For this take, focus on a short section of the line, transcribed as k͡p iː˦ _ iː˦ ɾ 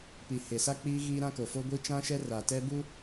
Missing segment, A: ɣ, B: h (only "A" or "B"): A